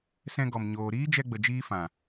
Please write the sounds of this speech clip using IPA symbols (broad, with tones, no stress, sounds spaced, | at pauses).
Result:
s ɛ̃˧ ɡ ɔ˨ m ɲ oː˨ ɾ iː˦ d͡ʒ ɛ˧ ɡ͡b ə˨ d͡ʒ iː˧ f ã˨